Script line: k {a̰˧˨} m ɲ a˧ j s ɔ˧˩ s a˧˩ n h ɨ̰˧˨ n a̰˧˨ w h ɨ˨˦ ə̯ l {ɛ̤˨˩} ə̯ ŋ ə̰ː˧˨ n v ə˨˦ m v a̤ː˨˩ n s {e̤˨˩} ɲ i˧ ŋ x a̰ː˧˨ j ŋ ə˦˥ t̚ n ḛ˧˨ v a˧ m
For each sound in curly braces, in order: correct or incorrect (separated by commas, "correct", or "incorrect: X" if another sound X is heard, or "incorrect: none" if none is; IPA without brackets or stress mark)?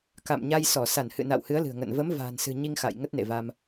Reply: correct, incorrect: ɨ̤˨˩, incorrect: ɨ̤˨˩